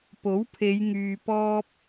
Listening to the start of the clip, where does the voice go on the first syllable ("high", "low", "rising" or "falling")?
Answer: rising